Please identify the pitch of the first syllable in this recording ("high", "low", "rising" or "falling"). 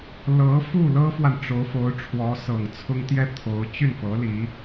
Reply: rising